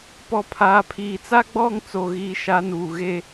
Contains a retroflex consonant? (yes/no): no